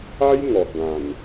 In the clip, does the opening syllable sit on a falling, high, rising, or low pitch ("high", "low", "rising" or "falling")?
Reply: high